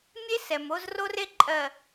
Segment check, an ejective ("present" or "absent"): present